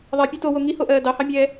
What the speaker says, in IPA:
ðˤ ɜ pʲ ɛ t o w o ŋ i h o ʔ ɜː d ɑ h ɑ mʲ ɛː

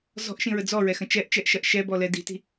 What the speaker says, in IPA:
z ɔ̤ ʔ ʃ ĩ ɹ ə d͡z ɔ ɹ ɛ x ə̃ t͡ʃ ɛ ʔ t͡ʃ ɛ ʔ ʃ ɐ ʔ ʃ ɛ b ɔ l ɛ d i̤ t i̤

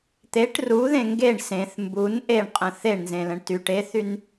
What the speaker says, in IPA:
t̪ e ʈ r u ð ẽ ŋ ɡ e ɳ s ẽ θ m b u n ʔ e ɳ qʼ ə̃ θ e ɳ n z ẽ l ə̃ ɳ t y ʈ e θ y n

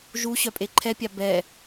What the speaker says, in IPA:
ʒ u ɕ œ pʼ e ǃʰ ɛ pʲ a b ɛ

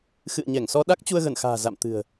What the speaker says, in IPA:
x ɨ̰˧˨ ə̯ ɲ ɛ˧˩ ŋ s ɔ˧ ɗ a˦˥ k̚ t͡ɕ u˧ ə̯ ɣ ə˧˩ n x a̤ː˨˩ z a̰˧˨ m t̪ ɨ̤˨˩ ə̯

